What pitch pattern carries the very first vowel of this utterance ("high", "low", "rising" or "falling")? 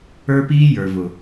high